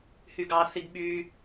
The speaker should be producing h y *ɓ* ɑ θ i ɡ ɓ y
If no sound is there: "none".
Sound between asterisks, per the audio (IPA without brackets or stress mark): ɡ